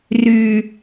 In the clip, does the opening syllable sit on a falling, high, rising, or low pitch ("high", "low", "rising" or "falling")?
low